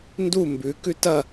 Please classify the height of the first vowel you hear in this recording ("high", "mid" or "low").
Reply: high